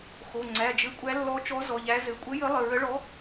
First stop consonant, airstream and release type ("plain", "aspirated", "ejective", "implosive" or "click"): click